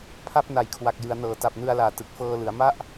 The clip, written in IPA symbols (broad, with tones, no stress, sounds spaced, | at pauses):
pʰ a˥˩ p̚ n a˨˩ j kʰ w a˨˩ k̚ j ɯ˩˦ a̯ n ɤː˩˦ t a˨˩ p̚ n ɯ˧ a̯ l aː˨˩ t ɯ˨˩ k̚ f ɤː˧ l ɯ˩˦ a̯ m a˥˩ ʔ